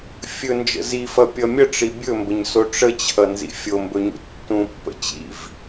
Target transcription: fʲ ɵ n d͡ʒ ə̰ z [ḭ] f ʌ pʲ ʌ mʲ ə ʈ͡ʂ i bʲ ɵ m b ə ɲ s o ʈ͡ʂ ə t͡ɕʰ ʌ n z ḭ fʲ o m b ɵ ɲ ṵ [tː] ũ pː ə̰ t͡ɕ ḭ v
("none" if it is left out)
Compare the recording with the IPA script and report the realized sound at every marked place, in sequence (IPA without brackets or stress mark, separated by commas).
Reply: i, tː